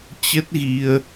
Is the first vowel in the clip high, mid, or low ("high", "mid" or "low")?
mid